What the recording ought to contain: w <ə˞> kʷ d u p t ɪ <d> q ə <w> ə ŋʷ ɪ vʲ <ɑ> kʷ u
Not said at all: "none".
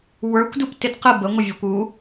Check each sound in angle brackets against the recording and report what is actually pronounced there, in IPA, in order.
ə˞, d, b, ɑ

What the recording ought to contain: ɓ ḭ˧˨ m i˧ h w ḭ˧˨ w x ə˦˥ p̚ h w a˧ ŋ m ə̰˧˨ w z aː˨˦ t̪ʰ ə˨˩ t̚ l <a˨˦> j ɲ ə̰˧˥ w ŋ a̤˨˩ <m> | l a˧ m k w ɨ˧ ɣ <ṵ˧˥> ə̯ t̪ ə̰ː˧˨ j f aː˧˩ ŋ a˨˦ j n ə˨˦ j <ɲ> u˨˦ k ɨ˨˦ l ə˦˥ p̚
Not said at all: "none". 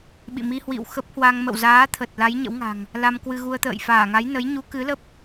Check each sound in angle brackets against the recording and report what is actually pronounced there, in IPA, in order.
a˨˦, ŋ, u˧, ɲ

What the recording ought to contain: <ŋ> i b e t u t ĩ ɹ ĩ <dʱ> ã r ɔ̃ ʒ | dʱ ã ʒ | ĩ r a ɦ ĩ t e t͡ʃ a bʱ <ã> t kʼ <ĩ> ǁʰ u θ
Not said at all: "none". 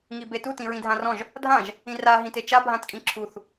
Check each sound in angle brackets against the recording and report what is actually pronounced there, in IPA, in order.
ŋ, dʱ, ã, ĩ

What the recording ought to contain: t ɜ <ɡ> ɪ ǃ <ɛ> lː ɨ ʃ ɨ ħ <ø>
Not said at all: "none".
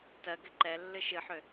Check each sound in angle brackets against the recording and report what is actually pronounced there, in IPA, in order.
ɡ, ɛ, ø

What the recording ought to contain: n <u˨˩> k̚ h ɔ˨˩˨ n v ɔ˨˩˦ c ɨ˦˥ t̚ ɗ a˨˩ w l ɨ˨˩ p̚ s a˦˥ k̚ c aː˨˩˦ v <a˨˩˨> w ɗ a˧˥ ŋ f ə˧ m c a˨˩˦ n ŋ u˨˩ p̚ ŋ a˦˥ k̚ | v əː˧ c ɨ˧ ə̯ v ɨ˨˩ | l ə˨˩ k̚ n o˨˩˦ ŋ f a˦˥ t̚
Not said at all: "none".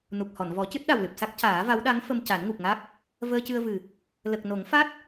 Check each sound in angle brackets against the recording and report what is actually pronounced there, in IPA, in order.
u˨˩, a˧˥

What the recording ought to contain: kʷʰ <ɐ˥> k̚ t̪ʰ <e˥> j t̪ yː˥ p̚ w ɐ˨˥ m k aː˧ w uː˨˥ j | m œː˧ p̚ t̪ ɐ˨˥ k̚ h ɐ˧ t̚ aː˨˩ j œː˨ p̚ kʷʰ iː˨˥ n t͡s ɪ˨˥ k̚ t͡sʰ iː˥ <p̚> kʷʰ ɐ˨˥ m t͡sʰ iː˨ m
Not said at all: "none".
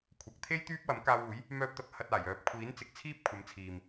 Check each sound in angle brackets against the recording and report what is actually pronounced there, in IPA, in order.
ɐ˨, e˥, p̚

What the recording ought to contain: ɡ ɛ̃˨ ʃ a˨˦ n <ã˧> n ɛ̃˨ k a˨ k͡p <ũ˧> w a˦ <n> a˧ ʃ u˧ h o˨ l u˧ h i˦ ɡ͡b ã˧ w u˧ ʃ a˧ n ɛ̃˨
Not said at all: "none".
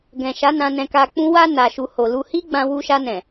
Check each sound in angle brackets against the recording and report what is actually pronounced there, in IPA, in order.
ã˧, ũ˧, n

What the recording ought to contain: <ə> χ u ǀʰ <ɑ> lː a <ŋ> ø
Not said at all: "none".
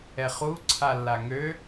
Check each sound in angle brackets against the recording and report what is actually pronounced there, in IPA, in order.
ɛ, a, ŋ

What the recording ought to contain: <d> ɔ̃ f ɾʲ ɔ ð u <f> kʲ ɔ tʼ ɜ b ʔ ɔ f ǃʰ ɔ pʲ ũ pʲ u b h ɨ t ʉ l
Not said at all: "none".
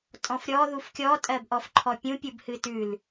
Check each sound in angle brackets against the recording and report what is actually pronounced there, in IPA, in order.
tʼ, f

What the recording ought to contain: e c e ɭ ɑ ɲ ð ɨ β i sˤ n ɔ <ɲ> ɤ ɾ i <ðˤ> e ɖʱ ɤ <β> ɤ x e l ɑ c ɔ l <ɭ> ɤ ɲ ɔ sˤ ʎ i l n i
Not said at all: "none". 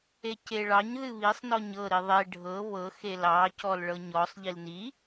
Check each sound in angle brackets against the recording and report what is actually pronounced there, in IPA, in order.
ɲ, ðˤ, β, ɭ

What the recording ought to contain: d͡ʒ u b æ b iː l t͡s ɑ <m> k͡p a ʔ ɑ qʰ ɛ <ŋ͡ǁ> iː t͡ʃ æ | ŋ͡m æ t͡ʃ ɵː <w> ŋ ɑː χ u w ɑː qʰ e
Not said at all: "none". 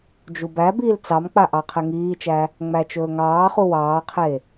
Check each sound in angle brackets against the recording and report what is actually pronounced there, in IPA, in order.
m, ŋ, none

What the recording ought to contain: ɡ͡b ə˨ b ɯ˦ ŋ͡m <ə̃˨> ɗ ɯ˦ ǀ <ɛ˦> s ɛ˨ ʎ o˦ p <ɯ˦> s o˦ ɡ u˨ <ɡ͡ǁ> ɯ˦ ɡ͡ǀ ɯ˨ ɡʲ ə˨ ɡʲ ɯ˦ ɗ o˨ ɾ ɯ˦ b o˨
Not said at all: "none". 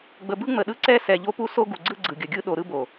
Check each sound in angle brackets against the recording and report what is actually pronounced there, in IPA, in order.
ə˨, ɛ˦, u˦, ɡ͡ǀ

